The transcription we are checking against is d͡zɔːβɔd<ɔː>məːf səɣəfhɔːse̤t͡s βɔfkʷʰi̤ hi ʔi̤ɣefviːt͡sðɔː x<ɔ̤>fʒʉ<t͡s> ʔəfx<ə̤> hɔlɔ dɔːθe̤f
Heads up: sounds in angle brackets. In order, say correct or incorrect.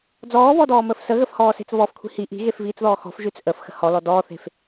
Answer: correct, correct, correct, correct

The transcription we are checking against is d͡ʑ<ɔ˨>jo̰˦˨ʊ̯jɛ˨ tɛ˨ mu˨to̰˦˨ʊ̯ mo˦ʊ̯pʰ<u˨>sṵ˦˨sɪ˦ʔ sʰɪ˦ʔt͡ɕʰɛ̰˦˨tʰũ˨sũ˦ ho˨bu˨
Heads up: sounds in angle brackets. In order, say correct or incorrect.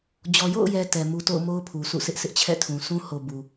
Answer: correct, correct

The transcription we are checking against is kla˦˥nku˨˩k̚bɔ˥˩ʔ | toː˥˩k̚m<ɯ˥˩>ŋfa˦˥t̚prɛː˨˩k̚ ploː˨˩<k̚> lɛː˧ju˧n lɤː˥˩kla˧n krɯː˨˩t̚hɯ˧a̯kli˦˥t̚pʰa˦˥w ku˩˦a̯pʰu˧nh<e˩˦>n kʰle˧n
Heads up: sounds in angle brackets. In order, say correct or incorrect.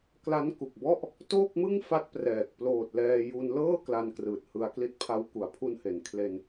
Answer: correct, incorrect, correct

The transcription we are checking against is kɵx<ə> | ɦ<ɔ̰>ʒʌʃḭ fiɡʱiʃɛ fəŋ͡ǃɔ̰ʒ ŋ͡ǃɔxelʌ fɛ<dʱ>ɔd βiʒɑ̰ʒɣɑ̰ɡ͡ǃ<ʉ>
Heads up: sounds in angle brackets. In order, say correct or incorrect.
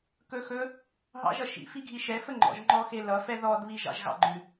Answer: incorrect, incorrect, incorrect, correct

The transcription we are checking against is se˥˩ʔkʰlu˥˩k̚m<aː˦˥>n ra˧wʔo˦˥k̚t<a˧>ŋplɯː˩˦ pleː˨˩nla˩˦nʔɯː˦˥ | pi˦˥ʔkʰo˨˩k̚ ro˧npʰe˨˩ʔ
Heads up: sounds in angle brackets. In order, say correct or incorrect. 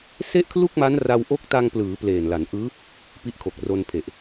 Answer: incorrect, correct

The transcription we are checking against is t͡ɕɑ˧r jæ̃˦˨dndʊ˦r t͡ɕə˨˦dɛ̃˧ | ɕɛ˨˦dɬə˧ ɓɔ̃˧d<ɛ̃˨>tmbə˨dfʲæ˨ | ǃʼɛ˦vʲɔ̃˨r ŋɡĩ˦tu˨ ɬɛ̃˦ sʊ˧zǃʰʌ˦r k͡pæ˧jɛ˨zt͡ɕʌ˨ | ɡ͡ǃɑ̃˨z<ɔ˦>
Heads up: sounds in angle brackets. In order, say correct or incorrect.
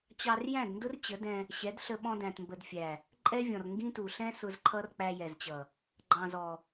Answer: incorrect, incorrect

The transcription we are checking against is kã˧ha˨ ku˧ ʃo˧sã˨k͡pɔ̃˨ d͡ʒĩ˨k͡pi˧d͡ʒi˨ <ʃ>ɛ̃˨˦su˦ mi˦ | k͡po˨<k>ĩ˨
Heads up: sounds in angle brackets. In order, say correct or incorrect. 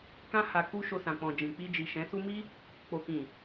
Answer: correct, correct

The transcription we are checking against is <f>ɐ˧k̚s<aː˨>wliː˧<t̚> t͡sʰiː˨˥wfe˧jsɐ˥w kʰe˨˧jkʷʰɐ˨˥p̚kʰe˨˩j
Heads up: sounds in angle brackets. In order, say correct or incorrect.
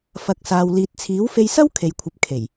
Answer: correct, incorrect, correct

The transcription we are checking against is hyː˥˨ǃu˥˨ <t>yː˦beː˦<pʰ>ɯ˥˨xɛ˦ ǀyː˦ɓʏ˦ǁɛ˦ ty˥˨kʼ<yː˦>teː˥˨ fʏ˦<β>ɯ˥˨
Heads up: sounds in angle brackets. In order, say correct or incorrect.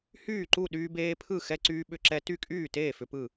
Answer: incorrect, correct, incorrect, incorrect

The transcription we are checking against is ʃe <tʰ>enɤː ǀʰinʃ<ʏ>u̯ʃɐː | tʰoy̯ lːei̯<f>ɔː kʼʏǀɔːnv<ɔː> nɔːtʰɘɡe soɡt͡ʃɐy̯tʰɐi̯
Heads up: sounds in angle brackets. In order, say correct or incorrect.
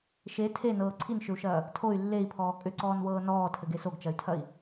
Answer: correct, correct, incorrect, incorrect

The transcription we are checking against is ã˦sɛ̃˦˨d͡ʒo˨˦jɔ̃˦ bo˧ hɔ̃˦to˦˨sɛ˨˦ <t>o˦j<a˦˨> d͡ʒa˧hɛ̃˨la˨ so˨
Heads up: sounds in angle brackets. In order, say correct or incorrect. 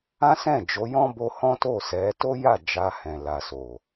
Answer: correct, correct

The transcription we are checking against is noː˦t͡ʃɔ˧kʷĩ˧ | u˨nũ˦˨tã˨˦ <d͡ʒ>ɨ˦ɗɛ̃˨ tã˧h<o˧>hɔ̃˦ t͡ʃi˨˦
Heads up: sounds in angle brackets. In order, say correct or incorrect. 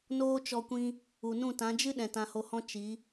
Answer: correct, correct

